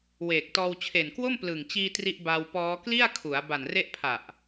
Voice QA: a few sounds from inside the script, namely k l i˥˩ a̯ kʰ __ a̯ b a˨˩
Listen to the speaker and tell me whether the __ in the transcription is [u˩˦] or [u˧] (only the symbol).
u˩˦